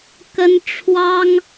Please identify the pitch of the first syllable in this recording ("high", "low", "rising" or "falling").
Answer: high